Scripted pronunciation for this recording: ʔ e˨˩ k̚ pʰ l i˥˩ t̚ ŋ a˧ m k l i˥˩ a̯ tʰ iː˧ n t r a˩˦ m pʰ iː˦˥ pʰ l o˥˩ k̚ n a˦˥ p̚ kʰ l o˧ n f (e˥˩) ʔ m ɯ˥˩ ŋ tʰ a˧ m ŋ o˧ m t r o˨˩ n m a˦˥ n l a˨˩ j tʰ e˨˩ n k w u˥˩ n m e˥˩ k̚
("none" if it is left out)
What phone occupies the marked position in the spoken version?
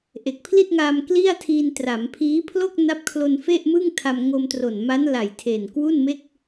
e˥˩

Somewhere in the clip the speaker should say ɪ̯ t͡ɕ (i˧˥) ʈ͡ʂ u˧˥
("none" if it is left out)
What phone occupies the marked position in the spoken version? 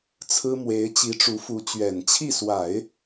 i˧˥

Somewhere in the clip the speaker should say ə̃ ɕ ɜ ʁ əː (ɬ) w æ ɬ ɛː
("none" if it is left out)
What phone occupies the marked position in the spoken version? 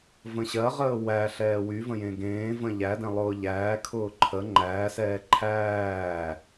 none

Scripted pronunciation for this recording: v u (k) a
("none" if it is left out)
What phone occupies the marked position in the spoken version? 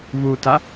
t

